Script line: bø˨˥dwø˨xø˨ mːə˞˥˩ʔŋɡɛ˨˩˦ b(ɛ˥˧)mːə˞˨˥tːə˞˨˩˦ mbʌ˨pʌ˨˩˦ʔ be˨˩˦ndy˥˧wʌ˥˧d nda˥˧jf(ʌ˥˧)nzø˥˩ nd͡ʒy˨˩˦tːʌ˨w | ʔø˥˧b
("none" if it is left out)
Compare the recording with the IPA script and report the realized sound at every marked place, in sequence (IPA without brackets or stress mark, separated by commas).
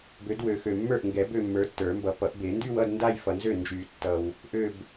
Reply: ø˥˧, ʌ˨